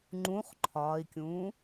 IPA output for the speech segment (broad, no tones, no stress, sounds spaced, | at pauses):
ŋ͡ǃ ũ χ ǃʰ ɒː i̯ kʲ ũː